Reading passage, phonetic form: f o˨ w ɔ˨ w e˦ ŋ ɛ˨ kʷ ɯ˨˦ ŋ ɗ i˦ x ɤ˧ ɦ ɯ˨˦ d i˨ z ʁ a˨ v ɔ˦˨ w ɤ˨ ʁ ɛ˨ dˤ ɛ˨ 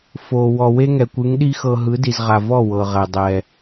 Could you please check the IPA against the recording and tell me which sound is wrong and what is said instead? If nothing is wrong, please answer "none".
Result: none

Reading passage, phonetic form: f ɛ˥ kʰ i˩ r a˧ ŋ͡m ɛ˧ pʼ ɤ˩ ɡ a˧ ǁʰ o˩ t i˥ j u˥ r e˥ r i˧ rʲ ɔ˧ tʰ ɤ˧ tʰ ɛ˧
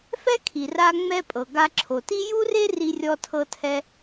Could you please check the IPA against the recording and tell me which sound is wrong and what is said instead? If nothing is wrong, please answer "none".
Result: none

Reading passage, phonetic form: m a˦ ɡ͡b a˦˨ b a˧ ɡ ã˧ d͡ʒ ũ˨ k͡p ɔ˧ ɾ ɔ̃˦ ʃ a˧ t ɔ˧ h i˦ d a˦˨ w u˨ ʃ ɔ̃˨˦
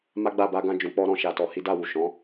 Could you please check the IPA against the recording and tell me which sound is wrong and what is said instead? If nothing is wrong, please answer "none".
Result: none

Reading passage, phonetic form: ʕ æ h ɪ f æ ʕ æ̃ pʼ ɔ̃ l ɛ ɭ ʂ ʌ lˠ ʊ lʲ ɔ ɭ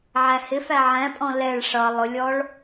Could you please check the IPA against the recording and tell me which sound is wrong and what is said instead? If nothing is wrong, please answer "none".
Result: none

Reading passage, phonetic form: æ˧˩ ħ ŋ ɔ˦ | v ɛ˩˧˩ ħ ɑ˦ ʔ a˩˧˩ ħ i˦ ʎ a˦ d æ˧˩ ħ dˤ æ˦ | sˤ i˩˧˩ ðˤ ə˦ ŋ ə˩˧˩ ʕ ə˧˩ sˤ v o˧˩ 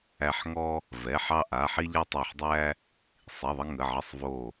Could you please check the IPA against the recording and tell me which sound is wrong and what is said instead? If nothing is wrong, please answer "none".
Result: d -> tˤ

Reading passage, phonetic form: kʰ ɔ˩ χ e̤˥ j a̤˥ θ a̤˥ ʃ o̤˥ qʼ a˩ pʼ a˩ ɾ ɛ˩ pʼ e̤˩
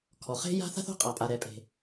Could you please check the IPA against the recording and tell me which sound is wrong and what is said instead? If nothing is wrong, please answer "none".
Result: ʃ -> θ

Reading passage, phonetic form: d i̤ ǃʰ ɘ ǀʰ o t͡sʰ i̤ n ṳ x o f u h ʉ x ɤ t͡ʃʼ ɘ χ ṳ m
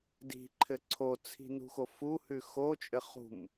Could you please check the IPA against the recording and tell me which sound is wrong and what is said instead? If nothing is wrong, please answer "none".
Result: ɤ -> o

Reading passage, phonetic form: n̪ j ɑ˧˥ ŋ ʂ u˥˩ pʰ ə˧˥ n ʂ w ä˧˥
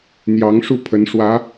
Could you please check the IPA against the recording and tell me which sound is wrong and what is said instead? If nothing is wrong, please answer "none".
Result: none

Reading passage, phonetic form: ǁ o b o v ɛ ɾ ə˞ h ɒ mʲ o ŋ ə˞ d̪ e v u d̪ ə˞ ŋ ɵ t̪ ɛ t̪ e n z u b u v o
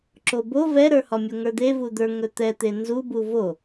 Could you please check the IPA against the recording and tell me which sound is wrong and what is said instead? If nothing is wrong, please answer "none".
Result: none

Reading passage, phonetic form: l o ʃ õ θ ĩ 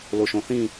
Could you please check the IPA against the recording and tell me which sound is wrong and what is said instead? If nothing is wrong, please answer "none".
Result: none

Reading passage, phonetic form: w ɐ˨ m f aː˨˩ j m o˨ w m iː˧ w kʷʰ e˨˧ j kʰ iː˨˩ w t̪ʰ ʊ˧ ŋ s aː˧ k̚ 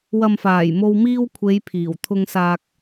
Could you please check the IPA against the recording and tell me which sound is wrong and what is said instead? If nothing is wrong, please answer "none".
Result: kʰ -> pʰ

